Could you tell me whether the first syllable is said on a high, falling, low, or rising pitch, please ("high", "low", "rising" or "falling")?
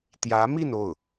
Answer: rising